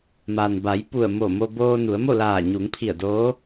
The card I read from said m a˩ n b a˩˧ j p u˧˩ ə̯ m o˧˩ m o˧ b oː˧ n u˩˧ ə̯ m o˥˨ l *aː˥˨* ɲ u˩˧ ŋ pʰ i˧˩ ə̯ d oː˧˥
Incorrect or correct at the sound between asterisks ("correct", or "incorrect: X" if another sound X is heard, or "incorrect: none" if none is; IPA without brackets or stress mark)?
incorrect: aː˧˩